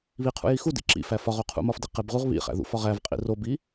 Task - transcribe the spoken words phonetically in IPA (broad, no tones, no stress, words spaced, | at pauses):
βiqʰṵji xudḭ ǁḭfæ fɒʁo qʰṵmɒfdi qebʁuʁ βḭχæ̰ ðṵfɒʁ ævqʼḭ robi